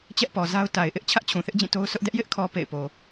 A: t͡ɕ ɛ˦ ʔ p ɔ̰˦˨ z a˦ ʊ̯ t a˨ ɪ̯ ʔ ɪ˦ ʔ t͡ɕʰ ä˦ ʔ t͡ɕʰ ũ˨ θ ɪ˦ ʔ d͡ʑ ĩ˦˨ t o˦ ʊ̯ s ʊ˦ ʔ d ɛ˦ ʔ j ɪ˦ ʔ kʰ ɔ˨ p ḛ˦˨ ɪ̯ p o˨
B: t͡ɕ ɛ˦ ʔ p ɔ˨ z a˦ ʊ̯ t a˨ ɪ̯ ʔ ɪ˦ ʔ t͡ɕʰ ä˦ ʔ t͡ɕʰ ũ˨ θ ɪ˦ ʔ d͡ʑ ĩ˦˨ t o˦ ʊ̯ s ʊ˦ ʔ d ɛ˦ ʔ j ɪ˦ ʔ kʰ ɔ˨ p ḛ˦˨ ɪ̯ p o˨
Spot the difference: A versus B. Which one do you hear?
B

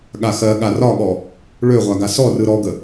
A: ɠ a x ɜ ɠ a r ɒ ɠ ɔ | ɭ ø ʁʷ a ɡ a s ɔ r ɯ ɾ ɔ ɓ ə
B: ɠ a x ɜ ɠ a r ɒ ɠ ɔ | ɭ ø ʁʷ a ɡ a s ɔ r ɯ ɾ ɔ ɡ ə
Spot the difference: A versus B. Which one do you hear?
B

